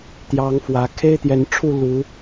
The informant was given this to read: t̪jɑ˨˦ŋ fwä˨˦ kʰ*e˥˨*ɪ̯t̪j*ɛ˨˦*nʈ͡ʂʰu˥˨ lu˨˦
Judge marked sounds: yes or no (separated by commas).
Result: no, yes